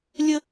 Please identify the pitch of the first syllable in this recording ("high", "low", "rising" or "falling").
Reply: high